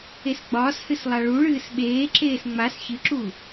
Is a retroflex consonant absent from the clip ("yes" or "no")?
no